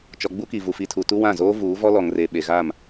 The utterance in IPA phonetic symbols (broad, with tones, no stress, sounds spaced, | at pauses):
t͡ʃ ɔ˨ ɡ͡b u˦ k i˨ v u˨ f i˨ tʰ u˨ t u˦ w ã˦˨ z oː˦ v uː˨˦ v ɔ˦ l ɔ˨ ŋ r e˨ ɓ e˨ ɣ a˦˨ m